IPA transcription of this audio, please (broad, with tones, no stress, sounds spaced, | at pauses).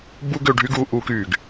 b u˦ ɡ ø˧ ɖʱ y˦ ɡ uː˧ ʔ uː˧ k yː˨ ɡ